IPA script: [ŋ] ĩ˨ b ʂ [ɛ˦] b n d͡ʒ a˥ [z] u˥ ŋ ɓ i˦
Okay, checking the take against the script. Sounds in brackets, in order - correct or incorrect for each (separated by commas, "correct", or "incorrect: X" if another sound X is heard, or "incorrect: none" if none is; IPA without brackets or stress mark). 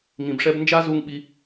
correct, correct, correct